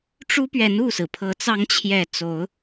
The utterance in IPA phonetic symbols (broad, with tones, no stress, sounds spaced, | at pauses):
ʈ͡ʂ u˦ p ɥ ɛ˨˦ n u˥˨ s ɹ̩˩ pʰ ɤ˨˦ t͡s ɑ˨˦ ŋ t͡ɕʰ j ɛ˨˩ t͡s o˨˦ ʊ̯